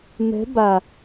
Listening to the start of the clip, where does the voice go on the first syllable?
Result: rising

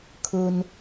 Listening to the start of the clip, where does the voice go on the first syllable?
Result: low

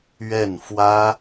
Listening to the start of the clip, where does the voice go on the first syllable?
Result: falling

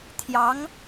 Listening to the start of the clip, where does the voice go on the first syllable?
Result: rising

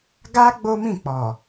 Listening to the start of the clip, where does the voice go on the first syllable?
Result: high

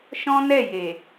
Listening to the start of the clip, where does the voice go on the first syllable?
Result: high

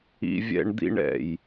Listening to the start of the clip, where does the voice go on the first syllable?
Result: high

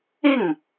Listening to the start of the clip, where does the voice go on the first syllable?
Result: falling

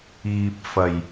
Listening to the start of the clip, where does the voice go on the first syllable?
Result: low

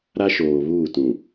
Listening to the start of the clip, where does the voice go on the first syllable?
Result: high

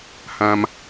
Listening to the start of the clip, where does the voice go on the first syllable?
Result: high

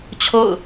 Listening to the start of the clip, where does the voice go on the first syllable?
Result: falling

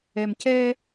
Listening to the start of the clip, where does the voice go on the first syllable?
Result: low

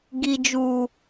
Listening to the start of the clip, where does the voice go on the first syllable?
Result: high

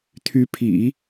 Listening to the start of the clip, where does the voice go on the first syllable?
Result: rising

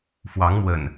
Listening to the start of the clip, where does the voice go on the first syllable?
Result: rising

